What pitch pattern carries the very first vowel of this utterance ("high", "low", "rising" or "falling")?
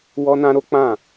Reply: high